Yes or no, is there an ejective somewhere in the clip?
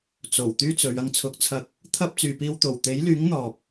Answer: no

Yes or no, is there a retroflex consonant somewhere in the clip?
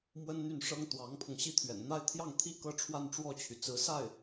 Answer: yes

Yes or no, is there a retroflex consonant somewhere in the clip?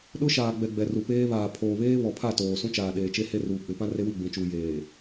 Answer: no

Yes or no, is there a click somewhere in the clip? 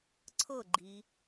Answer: yes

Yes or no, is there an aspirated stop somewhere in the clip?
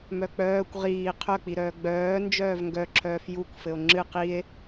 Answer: yes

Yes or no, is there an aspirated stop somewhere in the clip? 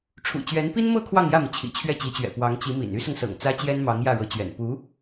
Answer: yes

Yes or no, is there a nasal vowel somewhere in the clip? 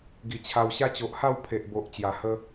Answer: no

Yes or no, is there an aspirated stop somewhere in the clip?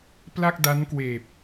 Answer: no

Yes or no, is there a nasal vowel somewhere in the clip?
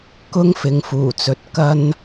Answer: no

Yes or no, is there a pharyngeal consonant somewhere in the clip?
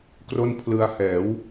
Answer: no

